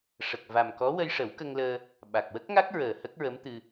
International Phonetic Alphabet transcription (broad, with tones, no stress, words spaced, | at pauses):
ʂə˨˩k̚va˨˩mkɔ˧˥ wə˧jʂə˨˩˦wkə˧ŋləː˧ | ɓa˨˩k̚ wə˦˥k̚ŋa˦˥k̚ ɹəː˨˩hə˦˥k̚ɹə˧˥mt̪ɨ˧